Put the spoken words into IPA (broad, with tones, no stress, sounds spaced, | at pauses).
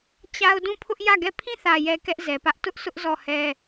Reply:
t͡ɕ a˦ ʊ̯ d ũ˦˨ pʰ ʊ˦ ʔ j ä˦˨ ɡ ɛ˦˨ pʰ ĩ˦˨ θ ä˨ j ɛ˨ k ɛ˦ ʔ z ɛ˨ p ä˦ ʔ t ʊ˦ ʔ sʰ ʊ˦ ʔ z ɔ˦˨ h ɛ˦